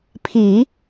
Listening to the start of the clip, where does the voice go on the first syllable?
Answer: low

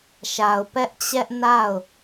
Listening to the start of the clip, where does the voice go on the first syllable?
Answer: low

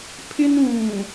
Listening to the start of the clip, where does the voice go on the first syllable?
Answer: high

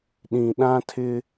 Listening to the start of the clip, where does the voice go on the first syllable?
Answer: low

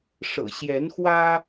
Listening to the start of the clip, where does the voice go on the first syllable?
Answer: low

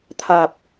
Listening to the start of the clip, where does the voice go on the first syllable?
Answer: low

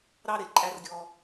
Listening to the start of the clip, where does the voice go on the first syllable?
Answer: high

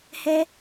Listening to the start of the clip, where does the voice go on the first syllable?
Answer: high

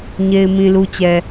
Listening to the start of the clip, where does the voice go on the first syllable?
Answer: low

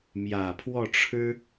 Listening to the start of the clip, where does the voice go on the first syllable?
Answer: low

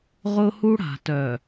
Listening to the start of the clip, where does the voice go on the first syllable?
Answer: high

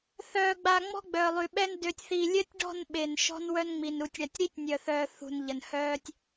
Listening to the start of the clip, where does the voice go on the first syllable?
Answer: low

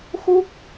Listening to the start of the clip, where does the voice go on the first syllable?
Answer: falling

